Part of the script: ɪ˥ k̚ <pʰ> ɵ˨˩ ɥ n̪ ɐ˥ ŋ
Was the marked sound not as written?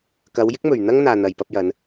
yes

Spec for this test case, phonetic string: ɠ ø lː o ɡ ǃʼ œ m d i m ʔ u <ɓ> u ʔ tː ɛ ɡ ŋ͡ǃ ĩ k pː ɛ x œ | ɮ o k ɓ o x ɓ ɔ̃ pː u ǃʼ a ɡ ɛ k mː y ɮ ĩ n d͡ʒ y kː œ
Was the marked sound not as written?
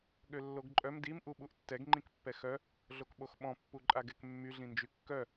no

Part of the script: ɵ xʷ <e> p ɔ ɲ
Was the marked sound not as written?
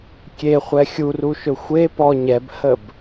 no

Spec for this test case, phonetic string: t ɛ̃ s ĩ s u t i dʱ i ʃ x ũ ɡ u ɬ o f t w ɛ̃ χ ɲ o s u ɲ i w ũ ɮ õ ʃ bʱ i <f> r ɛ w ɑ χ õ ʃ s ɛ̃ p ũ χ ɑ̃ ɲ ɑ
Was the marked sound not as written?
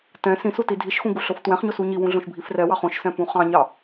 no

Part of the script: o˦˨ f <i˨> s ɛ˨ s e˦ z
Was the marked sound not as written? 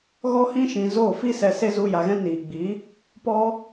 yes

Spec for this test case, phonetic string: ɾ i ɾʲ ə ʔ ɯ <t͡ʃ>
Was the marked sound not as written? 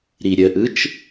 no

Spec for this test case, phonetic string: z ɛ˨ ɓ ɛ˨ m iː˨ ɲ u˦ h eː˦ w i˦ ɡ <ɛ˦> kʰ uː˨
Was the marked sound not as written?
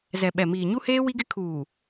yes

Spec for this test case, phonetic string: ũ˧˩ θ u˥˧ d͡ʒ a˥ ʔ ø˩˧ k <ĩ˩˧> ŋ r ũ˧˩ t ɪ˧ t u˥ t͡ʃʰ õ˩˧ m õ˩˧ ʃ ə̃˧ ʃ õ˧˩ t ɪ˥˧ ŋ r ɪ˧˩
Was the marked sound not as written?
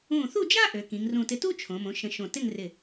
no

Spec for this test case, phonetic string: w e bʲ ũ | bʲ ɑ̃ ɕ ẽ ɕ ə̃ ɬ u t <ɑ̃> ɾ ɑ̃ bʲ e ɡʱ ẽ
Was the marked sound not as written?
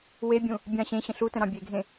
yes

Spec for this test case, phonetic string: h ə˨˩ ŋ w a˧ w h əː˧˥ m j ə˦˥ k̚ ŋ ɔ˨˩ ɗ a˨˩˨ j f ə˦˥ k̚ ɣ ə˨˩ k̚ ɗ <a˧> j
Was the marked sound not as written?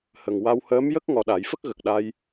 no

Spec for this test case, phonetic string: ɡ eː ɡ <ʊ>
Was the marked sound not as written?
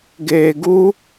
yes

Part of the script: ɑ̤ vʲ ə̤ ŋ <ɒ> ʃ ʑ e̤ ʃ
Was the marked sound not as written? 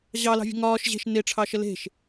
yes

